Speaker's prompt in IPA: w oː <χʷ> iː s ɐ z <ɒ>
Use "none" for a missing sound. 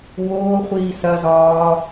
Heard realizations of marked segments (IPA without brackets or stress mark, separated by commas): χʷ, ɒː